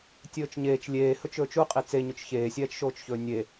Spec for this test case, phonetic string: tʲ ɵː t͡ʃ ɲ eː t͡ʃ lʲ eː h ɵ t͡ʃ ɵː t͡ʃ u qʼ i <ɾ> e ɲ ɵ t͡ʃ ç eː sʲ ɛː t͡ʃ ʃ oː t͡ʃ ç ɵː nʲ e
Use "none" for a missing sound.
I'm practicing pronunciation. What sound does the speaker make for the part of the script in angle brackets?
t͡s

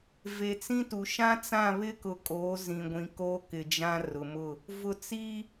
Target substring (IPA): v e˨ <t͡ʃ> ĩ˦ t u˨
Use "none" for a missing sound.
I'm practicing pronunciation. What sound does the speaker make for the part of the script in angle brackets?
t͡s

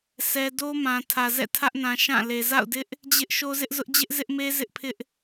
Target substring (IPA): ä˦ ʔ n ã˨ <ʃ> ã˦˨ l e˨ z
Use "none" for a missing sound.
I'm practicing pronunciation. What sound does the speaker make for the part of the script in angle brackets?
ʃ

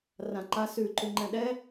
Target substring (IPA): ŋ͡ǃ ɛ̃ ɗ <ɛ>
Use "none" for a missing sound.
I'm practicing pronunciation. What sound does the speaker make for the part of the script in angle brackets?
ɛ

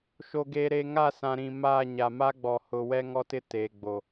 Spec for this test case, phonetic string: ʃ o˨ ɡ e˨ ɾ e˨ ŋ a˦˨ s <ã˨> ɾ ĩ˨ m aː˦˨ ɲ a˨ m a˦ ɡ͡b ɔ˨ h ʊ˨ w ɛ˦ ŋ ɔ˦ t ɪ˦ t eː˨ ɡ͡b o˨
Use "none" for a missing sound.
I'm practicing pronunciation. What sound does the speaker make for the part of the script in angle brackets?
ã˨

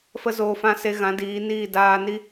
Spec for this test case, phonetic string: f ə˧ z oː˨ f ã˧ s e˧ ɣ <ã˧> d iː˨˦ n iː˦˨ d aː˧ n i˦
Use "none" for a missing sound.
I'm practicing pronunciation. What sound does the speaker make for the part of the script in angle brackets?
ã˨˦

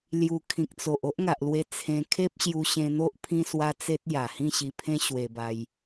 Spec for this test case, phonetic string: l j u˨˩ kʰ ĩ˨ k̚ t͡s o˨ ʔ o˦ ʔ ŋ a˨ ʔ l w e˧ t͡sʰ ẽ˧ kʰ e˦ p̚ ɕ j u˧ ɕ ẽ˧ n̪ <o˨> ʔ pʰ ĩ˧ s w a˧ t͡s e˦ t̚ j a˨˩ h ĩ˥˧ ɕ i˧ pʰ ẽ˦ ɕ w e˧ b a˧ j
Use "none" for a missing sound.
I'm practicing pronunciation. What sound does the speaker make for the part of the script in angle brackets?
o˦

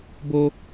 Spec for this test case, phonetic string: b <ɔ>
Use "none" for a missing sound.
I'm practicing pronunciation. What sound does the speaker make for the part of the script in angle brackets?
o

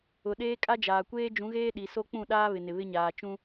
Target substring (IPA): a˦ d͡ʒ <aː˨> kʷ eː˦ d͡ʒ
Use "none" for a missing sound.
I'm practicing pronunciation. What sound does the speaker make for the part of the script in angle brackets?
aː˨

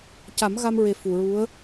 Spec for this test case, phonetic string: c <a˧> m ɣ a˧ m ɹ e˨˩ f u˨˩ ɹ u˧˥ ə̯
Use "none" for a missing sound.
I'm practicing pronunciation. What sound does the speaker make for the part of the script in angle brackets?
a˨˩˦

